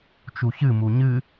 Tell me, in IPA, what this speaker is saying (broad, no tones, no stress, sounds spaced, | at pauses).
t͡ʃ u ç ɨ m u ɲ ɨ